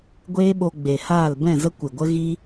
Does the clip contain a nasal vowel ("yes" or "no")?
yes